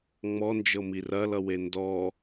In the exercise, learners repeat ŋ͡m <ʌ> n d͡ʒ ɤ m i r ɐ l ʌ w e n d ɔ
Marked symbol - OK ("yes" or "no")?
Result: no